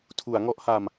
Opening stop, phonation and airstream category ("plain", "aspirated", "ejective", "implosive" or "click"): aspirated